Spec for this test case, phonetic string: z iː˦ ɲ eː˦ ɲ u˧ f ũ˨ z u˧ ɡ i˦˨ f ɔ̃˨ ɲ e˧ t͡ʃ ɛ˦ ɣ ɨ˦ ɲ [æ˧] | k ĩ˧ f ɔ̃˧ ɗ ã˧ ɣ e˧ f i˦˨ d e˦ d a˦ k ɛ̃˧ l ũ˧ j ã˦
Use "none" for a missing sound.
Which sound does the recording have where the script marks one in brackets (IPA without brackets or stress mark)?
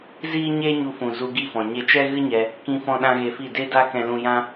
ɛ˧